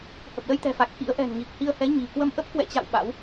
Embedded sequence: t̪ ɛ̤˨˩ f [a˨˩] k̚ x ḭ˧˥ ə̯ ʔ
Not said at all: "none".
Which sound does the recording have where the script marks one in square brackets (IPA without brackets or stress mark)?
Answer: a˨˩